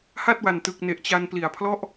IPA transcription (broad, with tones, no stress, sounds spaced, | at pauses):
h a˥˩ t̚ w a˨˩ n t ɯ˨˩ k̚ n e˨˩ ʔ t͡ɕ a˧ n p l i˨˩ a̯ pʰ l ɔ˥˩ ʔ